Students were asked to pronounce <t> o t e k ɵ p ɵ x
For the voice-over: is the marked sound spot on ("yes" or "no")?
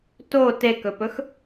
yes